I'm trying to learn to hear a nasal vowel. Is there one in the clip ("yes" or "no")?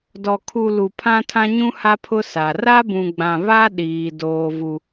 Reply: yes